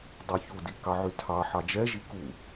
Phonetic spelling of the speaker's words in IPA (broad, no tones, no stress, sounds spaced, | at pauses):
dˤ u ç u d i k ɑ ʕ y tʰ ɑ ħ ɑ d͡ʒ ɛ ʒ i k u